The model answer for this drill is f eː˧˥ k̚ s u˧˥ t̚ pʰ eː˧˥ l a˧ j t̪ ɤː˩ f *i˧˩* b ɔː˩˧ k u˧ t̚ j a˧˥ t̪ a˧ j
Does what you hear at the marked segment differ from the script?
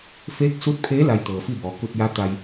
yes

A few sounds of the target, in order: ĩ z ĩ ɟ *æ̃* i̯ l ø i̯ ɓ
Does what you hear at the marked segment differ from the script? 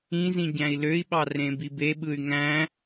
no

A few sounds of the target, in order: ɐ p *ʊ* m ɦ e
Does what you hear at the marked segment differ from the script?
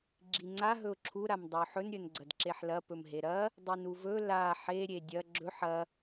yes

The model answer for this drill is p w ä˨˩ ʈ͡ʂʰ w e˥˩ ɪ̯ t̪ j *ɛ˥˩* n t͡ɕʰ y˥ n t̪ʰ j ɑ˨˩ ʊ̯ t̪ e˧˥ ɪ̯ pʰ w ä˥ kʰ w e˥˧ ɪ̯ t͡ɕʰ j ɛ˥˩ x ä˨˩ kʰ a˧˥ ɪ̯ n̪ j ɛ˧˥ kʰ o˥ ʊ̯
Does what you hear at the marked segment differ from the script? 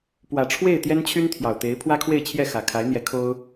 yes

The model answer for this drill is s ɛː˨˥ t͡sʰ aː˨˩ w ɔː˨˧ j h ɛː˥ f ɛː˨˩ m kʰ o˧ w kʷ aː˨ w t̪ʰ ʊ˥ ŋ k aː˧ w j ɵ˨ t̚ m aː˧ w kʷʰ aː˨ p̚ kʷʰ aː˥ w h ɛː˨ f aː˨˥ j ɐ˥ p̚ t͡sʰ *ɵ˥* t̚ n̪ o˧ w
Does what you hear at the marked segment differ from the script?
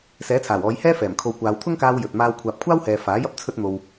no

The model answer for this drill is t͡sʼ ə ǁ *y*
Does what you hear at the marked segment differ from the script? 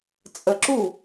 yes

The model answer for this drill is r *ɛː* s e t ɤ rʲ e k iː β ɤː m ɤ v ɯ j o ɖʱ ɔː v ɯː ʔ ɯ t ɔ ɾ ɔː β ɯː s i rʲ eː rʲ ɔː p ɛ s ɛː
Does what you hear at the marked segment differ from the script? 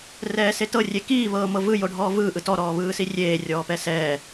no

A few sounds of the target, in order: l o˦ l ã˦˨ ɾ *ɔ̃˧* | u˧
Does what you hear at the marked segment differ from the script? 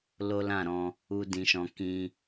no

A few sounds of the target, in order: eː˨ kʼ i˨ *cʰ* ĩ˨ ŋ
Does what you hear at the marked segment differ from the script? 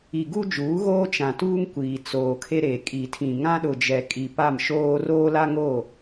yes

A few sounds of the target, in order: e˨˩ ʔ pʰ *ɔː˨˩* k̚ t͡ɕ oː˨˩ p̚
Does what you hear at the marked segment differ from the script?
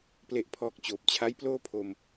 no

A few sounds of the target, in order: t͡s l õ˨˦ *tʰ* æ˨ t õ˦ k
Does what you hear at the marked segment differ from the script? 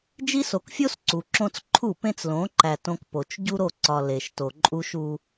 yes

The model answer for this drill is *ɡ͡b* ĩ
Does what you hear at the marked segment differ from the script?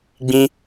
no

